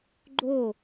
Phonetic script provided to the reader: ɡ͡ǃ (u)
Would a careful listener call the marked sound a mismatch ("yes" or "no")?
yes